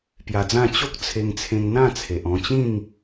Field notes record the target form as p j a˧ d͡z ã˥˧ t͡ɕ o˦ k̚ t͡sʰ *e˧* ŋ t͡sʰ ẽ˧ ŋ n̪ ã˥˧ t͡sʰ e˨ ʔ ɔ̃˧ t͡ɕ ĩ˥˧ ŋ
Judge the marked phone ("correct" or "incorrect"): correct